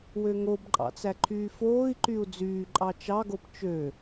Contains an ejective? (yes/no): yes